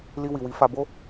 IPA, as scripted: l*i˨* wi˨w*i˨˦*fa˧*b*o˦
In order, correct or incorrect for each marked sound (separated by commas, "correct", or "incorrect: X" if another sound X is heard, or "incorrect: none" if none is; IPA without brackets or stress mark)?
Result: incorrect: i˧, correct, correct